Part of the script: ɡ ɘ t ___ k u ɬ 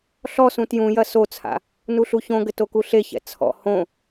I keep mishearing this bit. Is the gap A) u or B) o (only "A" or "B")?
B